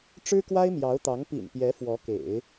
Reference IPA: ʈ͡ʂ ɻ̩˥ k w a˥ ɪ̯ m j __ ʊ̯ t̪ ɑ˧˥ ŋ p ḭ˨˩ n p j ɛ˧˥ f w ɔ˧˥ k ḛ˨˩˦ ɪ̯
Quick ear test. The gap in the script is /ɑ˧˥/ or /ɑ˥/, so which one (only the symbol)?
ɑ˧˥